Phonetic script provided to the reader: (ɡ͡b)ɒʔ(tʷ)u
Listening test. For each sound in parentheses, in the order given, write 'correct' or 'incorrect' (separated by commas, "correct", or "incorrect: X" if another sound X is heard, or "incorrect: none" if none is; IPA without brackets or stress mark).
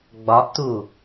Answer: correct, incorrect: t